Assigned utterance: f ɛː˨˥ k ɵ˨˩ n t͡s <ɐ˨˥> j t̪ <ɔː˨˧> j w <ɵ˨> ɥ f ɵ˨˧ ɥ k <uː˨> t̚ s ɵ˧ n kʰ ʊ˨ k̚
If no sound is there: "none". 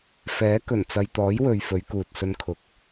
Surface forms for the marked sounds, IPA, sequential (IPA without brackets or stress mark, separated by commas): ɐ˨, ɔː˨˥, ɵ˨, uː˨